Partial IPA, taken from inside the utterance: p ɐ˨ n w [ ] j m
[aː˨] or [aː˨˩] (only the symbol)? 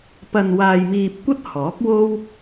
aː˨